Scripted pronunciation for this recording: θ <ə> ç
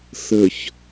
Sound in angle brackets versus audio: correct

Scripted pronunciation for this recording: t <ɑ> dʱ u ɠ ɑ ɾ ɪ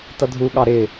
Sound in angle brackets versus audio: incorrect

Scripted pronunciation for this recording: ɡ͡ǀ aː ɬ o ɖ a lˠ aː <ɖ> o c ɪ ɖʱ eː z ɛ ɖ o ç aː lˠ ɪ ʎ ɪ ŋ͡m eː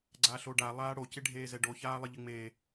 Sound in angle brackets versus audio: incorrect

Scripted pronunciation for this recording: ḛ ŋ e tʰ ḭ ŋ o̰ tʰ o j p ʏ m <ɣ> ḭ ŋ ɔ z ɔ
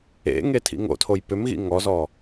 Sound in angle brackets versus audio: correct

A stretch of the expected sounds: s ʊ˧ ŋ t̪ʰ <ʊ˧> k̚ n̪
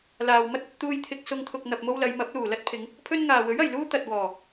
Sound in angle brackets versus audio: correct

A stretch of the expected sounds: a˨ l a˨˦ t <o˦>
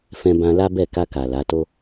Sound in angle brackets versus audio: correct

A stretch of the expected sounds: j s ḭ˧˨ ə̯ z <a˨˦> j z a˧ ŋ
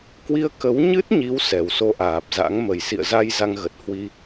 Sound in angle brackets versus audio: incorrect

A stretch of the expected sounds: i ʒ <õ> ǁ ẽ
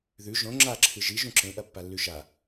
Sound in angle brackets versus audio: incorrect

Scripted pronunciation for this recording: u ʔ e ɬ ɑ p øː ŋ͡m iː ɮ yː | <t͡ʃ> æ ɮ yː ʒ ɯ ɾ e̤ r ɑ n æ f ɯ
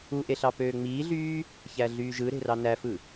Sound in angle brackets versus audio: incorrect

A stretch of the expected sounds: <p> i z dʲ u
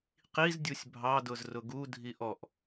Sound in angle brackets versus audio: incorrect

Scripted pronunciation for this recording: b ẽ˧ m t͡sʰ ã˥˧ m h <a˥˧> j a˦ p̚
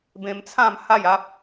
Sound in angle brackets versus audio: correct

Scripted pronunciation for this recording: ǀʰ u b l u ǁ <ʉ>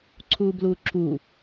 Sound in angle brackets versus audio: incorrect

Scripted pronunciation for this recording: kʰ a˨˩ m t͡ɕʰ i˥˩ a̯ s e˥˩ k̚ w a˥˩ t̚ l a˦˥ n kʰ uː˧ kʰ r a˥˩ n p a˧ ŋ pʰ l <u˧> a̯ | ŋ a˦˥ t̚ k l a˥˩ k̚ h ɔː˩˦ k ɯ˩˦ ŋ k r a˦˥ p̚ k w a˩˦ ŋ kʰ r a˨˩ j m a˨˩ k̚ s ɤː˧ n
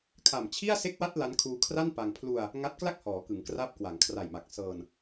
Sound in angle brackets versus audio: correct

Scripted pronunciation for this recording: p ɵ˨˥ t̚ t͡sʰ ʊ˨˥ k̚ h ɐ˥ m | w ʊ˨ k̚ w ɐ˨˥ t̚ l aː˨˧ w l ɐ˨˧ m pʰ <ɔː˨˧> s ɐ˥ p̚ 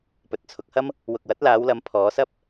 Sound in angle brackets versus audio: correct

